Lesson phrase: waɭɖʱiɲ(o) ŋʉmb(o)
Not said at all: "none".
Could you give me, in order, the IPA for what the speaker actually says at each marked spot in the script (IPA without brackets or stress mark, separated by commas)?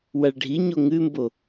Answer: o, o